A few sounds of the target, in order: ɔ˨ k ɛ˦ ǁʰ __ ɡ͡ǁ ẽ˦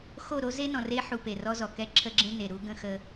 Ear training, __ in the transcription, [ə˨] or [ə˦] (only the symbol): ə˦